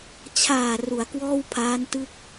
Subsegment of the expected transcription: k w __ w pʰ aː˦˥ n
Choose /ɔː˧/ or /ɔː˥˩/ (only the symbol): ɔː˥˩